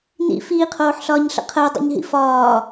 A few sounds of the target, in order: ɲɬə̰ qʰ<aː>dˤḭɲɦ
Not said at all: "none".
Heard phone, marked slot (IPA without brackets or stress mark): əː